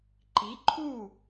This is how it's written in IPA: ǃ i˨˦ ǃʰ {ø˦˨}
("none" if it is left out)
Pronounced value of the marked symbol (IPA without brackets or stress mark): u˦˨